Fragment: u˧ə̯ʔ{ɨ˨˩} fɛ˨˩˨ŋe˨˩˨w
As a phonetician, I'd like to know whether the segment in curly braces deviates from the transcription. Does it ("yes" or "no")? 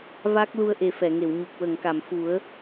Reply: yes